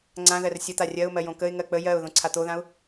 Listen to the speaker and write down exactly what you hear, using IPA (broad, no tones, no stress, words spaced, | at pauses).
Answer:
ŋ͡ǀã ðɜrsʲət̪a rʲɜʊ̯mɜjõ kəɪ̯ŋɜ k͡pə jɜʊ̯ ðõǀʰat̪oðãʊ̯